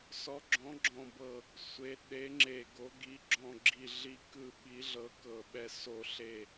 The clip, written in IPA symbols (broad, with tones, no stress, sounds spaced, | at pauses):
s ɔ˨˥ ɡ͡ǁ ɔ̃˨˥ ɡ͡ǁ ɔ̃˧˩ b ɤ˧˩ | sʷ e˨˥ ɗ e˨˥ ŋ͡ǁ e˧˩ ɡ o˨˥ ɡ i˨˥ ɡ͡ǁ ɔ̃˧˩ ɡ͡ǁ i˧˩ ɮ i˧˩ k ɯ˧˩ ɓ i˨˥ ɮ ɤ˨˥ k ɤ˧˩ ɓ ɛ˧˩ s o˧˩ ɬ e˧˩